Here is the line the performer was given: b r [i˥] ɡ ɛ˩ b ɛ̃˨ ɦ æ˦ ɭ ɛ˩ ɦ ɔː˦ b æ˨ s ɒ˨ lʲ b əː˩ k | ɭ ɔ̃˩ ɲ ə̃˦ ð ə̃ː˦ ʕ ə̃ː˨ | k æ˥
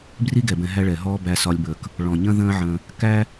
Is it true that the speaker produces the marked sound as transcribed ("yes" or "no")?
yes